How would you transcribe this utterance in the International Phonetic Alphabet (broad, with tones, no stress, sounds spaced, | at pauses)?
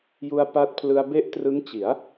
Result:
j u˧ a̯ p a˦˥ t̚ pʰ l ɯ˧ a̯ b e˦˥ ʔ t r ɯ˦˥ ŋ t͡ɕ i˩˦ a̯